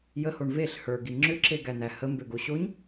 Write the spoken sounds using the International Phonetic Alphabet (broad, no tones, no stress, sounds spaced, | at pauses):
j ə h o ɳ v e ɬ h ə˞ ɡ i ŋ͡ǁ ʏ ǁ e ɡ æ n̪ æ h ə m b ø ɡ o ɕ o ɲ